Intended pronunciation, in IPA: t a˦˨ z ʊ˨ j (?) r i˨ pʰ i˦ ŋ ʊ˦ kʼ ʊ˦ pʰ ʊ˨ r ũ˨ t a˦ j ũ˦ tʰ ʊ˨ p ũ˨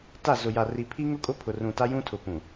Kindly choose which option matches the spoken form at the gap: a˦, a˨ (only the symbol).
a˨